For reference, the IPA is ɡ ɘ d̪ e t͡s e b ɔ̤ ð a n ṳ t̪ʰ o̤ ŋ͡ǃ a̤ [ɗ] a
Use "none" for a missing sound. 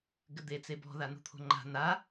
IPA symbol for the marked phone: n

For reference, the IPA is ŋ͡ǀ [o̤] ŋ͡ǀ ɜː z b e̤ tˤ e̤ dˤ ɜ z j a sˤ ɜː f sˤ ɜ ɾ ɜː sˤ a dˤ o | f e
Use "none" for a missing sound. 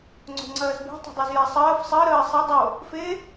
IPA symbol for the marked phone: o̤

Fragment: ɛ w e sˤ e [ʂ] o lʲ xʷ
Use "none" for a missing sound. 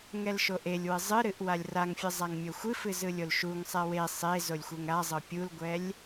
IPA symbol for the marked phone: z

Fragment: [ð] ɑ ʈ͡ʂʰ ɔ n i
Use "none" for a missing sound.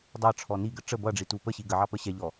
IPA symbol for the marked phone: dˤ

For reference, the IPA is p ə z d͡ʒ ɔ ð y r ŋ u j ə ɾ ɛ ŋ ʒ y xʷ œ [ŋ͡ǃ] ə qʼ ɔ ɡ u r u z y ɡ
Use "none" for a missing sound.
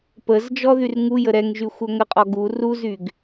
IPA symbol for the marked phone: ŋ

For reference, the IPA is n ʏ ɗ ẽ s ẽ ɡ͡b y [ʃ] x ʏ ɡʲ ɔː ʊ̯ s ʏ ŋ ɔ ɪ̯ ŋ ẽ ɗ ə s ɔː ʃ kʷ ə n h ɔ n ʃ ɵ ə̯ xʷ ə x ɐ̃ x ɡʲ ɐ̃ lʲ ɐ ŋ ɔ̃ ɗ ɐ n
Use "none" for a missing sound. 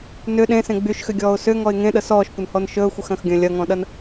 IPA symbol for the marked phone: ʃ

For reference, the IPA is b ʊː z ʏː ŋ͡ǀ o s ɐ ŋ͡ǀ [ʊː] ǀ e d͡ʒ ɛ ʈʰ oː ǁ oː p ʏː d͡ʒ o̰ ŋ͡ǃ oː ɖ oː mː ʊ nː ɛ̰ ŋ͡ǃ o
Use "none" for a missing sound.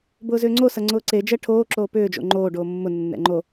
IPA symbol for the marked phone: ʊː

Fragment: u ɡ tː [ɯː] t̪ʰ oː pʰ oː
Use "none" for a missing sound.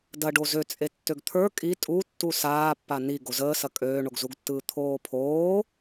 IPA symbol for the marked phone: ɯː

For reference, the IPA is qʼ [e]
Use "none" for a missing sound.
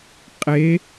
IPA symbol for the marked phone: e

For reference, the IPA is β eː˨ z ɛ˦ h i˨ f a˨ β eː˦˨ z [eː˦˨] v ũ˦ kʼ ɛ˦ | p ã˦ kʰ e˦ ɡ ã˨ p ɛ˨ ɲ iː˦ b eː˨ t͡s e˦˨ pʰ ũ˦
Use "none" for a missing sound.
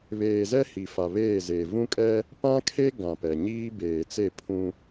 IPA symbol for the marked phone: eː˨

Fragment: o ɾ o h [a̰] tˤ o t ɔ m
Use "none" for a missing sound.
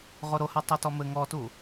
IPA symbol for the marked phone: a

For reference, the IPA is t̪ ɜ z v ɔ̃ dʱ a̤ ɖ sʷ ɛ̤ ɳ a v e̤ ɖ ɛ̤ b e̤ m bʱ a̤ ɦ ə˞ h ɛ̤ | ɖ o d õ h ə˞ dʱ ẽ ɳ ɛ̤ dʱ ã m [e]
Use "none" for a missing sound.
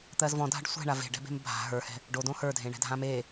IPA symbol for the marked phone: e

